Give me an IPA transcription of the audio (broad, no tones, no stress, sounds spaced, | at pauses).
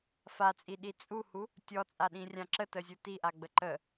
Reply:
f a t͡sʼ i ɗ i t͡sʼ u h u | tʲ ɔ t͡sʼ a ɗ ĩ rʲ ã ǁ ə t ə zʲ u t i ʔ a ɡ͡b ə ǃ ə